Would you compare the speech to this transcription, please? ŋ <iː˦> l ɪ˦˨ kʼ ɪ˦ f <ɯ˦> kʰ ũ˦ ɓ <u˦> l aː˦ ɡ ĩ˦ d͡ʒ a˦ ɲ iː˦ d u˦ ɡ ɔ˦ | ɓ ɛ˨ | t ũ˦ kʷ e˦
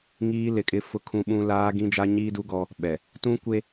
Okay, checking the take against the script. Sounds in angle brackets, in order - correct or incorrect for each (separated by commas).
correct, incorrect, incorrect